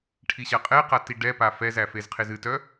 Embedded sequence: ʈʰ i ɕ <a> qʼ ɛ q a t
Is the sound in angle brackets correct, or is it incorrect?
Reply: correct